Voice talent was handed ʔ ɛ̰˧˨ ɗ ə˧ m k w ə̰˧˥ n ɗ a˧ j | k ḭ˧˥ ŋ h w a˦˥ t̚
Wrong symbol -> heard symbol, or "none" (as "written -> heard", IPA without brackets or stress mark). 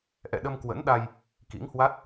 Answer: none